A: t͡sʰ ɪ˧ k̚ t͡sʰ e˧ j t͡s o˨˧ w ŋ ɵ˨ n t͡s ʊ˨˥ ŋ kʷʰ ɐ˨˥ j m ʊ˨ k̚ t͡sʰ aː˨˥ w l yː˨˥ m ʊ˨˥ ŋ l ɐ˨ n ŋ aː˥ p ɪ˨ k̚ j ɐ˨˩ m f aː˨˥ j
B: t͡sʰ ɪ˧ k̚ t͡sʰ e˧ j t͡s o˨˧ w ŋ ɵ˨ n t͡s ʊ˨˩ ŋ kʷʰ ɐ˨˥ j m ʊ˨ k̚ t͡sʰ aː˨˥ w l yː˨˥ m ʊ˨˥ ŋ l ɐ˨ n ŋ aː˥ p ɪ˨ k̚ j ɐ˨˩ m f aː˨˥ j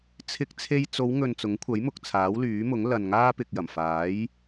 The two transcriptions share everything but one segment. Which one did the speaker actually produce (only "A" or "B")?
A